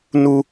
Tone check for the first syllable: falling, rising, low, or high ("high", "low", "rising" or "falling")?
high